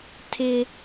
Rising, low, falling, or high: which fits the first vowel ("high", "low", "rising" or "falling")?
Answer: high